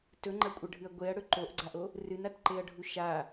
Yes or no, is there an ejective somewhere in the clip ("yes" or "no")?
yes